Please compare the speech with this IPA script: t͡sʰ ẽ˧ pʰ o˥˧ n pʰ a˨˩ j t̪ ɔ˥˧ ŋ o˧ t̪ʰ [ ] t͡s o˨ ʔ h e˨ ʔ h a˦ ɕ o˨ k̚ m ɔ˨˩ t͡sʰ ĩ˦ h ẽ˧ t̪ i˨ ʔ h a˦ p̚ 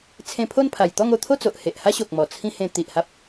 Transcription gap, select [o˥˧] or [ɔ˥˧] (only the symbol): o˥˧